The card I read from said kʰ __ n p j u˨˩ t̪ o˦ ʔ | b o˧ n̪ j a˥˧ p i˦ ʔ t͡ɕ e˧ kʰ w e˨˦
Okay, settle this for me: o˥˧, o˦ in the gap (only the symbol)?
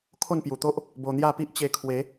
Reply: o˥˧